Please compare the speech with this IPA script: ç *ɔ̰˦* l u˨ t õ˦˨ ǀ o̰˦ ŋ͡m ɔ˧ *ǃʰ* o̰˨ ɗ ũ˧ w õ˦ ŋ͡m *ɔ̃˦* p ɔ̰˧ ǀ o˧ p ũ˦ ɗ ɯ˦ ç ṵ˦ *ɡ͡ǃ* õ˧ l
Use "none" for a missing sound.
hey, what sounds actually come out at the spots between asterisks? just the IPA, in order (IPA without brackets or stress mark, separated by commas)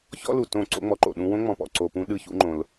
ɔ̰˦, ǃ, ɔ̃˦, ŋ͡ǃ